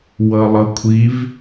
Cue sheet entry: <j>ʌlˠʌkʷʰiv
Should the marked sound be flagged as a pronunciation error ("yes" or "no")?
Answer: yes